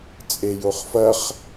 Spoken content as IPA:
t͡sʼejoχfɐχ

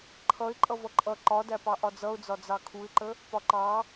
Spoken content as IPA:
ǃʰʌɪ̯ ǃʼʌvʌǃʼʌ ǃɒdæpɑ ʔɒd͡zʌʊ̯d͡zɒ d͡zɑkʰuɪ̯ǃə | pɒǃɑ

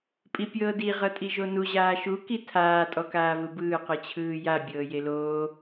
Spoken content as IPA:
pʼipʲɤːdi ʁɤtʼiʒonu ʑaːʃu kitʰaː tʼɔkaːvɯbɯː qɯt͡ɕʰɯːja bʲɤːjeloː

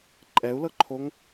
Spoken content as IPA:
ǃʼɛu̯lɤǃʰoŋ

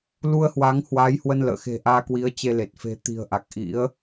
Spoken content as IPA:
lu˧ə̯hwa˨˦ŋ hwa˨˦jhwə˧nlə̰ː˧˨xe̤˨˩ ʔaː˧kwi˨˦ə̯t͡ɕe˧le˨˩t̚ fe̤˨˩ t̪i̤˨˩ə̯ʔa˨˩k̚ʔḭ˧˥ə̯

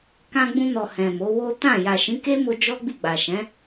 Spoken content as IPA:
kã˧ɡ͡bũ˧nɔ˨ hɛ̃˨mo˨˦wo˦ tã˦˨ ja˨ʃĩ˨˦ke˦mo˧ d͡ʒɔ˦ ɡ͡bi˦˨ɡ͡ba˨ ʃɛ̃˨˦

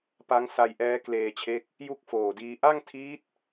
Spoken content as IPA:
pa˦˥ŋ sa˧jʔɛː˦˥ kleː˧t͡ɕʰe˦˥k̚ | ju˥˩k̚foː˨˩diː˧ ʔa˥˩ŋtʰiː˦˥t̚

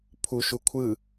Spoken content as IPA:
pʰu ʃukʷʰɯ

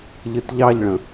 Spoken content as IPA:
ʎɨtʎɑʎɭə̃

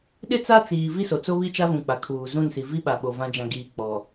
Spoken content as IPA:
ɗɪ˦t͡sa˦t͡siː˨ vi˦so˨ t͡so˦ βi˦ t͡ʃa˦vũ˨ k͡pa˨kʰuː˨ zũ˦˨nsi˨ vi˦ɓa˨ɓo˨ vã˦ d͡ʒã˨ɡiː˨ k͡pɔ˨

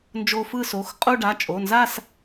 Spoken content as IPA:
nd͡ʒo˧fɯ˥˧so˩˧˩xqʼu˥˧ ɖa˩˧˩t͡ʃʼo˩˧˩nza˥˧s

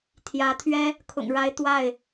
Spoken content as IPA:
t̪ʰjä˨˦t̪ʰɥɛ˦ | kʰʊ̰˨˩ŋɻa˨˦ɪ̯ t̪wa˥˨ɪ̯

